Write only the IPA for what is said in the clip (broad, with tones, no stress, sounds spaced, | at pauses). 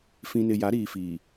f ĩ˨ n ɪ˨ j a˨˦ ɾ iː˨ f iː˨